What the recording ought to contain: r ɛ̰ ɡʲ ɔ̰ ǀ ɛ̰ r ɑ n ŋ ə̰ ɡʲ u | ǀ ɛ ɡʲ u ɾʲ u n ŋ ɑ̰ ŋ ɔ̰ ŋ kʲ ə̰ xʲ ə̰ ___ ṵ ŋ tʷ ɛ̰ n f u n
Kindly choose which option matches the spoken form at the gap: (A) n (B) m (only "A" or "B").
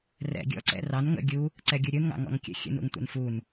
A